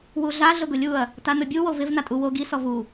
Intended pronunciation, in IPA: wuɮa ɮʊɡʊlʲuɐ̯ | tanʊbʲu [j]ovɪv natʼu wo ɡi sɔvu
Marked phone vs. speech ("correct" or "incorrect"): incorrect